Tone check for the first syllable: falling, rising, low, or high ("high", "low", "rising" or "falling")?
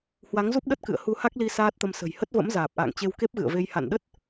rising